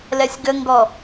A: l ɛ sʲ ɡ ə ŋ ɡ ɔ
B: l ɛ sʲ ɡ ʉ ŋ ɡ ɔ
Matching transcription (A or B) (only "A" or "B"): A